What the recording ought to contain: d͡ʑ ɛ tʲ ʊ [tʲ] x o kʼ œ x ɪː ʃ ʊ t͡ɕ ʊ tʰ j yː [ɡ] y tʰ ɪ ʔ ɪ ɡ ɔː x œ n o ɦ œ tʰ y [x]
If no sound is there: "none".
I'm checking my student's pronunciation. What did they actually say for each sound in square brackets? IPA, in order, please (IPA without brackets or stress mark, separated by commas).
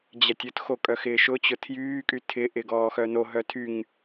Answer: t, kʼ, ŋ